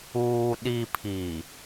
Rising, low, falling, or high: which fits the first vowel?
low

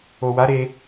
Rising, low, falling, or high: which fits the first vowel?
low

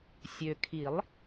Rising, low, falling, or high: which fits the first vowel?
low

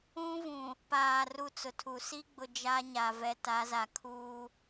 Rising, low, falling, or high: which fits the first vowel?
high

